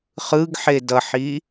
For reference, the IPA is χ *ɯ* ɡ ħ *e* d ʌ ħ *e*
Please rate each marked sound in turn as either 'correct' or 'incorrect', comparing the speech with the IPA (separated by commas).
correct, correct, incorrect